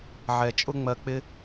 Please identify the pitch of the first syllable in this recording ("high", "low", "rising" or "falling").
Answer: low